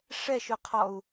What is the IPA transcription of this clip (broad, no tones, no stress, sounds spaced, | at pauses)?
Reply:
ʂ ɛ ʃ ʊ qʰ ɔ u̯